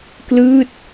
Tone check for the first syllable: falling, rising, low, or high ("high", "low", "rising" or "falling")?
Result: falling